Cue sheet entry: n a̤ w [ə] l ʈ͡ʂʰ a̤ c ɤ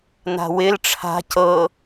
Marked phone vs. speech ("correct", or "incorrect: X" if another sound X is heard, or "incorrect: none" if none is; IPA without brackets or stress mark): incorrect: ɪ